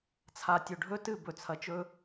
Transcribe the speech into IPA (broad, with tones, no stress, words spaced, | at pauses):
t͡sʰa˨tʲɵ˨ɖʱɵ˦ tɨ˦˨ bɵ˨t͡sʰɐ˨t͡ʃɵ˦